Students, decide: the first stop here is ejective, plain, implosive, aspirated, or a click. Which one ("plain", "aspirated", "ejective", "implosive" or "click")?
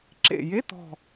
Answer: click